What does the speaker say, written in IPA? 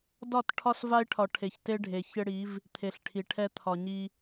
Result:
dɒ˦˨t ʈʰɒ˦sva˦ɪ̯ʈʰɒ˨ ʈʰe˨çte˦ɖʱe˨ çɘ˦ɽi˨˦v | t̪ʰe˨ɬʈʰi˨ʈʰɛ˦ t̪ʰɒ˨ɲi˦

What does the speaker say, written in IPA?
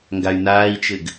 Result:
ŋɡay̯naːi̯t͡ʃɘɡ

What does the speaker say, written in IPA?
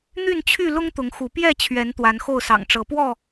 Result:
n̪y˥˨nt͡ɕʰy˥˨ lʊ˦ŋt̪ʊ˨˦ŋxu˨˦ pjɛ˥˨t͡ɕʰɥɛ˨˦n t̪wa˨˦nxo˥˨ʊ̯sɑ̰˨˩ŋʈ͡ʂɤ˨˦ pwɔ˥˨

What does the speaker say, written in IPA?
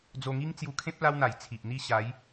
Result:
d͡zo˧ŋi˦ŋ t͡sju˧kʰẽ˦p̚ la˦wn̪a˨˩j t͡sʰi˨ʔn̪i˥˧ ɕa˨˦j

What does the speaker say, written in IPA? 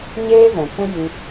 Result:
ɲeː˦vɛ̃˨ kũ˦ ji˧

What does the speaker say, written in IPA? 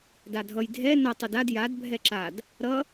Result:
dadʱʌj dʱɛ nʌ tˤudad jad bʱɛǁad | ɾʌ

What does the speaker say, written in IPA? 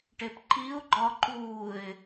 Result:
ʈepǃiʊ̯ɡ͡ǃɒ ǃuːɪ̯

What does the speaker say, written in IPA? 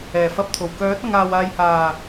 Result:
ɛː˨˩fɐ˧p̚t̪ʰo˨˩w kœː˨˥t̚ ɐ˧ŋ aː˨waː˨jhaː˨˩

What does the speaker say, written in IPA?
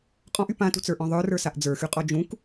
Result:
qʼɔ̃ʔy pãtṳt͡sə˞ʔɔ̃ ðˤə˞rə˞saʔ d͡zə˞xyqʼɔ d͡ʒũk

